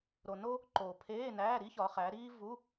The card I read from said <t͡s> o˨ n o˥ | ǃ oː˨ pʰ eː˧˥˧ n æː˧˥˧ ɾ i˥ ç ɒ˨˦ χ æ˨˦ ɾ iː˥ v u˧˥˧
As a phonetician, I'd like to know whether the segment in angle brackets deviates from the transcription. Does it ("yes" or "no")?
yes